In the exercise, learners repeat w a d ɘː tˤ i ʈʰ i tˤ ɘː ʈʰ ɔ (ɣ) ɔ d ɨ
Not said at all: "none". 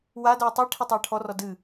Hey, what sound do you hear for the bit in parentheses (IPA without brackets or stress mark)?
r